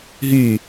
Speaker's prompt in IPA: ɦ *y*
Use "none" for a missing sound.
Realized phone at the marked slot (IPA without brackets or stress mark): y